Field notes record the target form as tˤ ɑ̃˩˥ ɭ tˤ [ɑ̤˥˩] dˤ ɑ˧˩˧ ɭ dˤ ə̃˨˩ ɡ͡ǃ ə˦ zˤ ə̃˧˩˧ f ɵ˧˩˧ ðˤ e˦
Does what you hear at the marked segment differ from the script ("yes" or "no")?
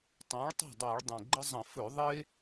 no